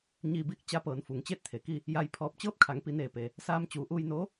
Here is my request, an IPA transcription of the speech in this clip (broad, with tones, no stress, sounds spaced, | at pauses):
ɲ iː˧ b iː˥˨ k̚ t͡ɕ a˧˥ p ɤː˩˧ n f u˩˧ ŋ t͡ɕ eː˥˨ t̚ t̪ʰ e˩ k i˥˨ | j a˧ j pʰ ɔː˧ p̚ t͡ɕ ɤː˥˨ p̚ kʰ a˩˧ ŋ p i˩˧ n eː˧˩ p e˩ | s aː˧ m t͡ɕ uː˩˧ ʔ uː˧ j n oː˧˥